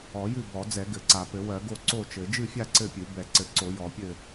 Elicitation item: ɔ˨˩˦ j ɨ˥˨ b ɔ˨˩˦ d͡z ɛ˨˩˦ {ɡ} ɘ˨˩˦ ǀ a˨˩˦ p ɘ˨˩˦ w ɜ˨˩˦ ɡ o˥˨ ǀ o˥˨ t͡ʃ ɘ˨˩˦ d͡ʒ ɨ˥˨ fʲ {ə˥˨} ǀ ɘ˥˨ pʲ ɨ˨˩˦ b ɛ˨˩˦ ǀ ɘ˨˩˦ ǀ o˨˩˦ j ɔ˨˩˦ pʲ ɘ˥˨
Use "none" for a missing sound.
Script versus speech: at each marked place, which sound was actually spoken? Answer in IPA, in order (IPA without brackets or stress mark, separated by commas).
ɡ, a˥˨